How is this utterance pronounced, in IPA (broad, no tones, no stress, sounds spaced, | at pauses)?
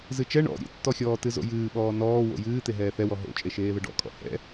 z ɨ t͡ʃ ɛ ɳ ɔ̰ ɾʲ ḛ tː ɔ xʲ ɔː t ɨ z o̰ j ɨː ɓ ɔː n ɔː w o̰ j ɨː t̪ e ɦ ɛː θ ɛ w ɔ ɦ o̰ t͡ʃʼ e ʃ eː ð ə ɖ ɔ̰ kʼ ɔ̰ h ɛ̰